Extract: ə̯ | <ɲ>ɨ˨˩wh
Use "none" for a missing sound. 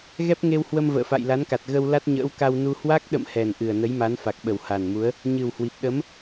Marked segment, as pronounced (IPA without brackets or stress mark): ɲ